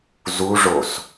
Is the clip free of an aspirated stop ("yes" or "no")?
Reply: yes